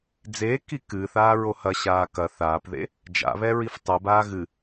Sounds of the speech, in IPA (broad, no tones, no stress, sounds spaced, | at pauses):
d͡z eː k i k ɨː θ aː ɹ o h ɐ ɕ aː k ɐ θ aː p ð ḛ | d͡ʒ a̰ β ɛ ɹ i f tˤ ɨ b aː ɣ ɨ